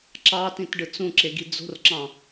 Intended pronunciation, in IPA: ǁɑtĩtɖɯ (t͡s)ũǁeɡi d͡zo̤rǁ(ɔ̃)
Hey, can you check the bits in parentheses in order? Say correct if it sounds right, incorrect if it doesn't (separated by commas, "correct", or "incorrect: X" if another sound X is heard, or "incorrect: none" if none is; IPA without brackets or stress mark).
correct, incorrect: ɑ̃